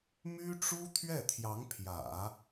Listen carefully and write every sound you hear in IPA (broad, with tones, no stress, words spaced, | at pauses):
my˥ʈ͡ʂu˥ t̪ʰɥɛ˥˩t̪ʰjɑ˧˥ŋpʰjä̰˨˩˦